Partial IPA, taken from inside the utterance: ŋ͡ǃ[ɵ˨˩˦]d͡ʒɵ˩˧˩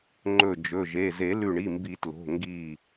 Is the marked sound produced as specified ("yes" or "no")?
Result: no